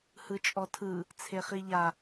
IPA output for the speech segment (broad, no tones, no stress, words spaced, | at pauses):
hɯt͡ʃʼɔtʰɯ | t͡sʰeχiʎa